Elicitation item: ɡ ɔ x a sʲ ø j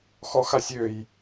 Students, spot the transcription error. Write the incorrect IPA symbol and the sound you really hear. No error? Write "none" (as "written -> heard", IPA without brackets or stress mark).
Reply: ɡ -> x